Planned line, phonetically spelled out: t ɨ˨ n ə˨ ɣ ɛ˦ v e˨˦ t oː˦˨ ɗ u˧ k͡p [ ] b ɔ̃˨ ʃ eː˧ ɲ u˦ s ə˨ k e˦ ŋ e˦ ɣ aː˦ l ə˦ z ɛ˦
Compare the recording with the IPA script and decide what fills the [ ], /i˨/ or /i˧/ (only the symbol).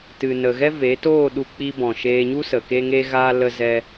i˧